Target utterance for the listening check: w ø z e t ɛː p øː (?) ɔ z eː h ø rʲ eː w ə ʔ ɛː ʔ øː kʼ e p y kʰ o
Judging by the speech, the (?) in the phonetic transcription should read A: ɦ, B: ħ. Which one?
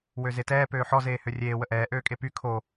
B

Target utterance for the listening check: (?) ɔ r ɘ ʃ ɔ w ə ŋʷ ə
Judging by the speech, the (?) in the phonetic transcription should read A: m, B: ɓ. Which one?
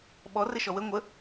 B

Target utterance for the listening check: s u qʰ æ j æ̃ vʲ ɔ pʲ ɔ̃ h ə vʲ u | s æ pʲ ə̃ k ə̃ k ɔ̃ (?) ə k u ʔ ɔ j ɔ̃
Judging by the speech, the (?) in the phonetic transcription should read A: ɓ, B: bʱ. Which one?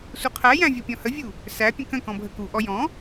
B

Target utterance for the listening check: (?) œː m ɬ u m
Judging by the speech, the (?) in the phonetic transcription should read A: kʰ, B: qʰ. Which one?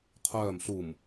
B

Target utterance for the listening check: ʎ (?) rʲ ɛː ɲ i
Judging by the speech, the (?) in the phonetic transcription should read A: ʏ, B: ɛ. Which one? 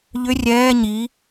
A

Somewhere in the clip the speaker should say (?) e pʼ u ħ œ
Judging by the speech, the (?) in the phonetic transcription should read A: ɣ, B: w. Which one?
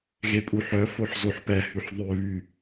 A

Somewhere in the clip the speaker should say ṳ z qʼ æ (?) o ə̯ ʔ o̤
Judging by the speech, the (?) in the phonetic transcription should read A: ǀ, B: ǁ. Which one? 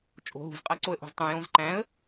A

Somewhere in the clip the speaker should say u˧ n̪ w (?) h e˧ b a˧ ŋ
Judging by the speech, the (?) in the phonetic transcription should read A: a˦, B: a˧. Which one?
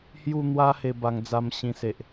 A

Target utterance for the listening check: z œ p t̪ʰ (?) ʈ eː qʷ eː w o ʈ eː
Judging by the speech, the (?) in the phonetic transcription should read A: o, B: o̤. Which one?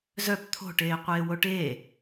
B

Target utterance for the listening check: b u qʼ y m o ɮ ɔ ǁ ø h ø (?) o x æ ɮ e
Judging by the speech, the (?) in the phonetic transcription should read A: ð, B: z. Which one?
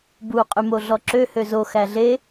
B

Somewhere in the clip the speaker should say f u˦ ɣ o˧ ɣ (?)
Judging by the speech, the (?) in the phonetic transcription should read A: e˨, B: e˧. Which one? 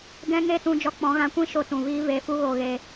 B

